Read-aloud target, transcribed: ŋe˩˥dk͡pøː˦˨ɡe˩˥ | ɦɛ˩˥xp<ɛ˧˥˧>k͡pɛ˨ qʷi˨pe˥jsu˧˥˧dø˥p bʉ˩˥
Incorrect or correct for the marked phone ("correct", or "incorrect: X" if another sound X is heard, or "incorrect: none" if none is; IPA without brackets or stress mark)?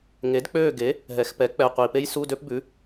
incorrect: ɛ˩˥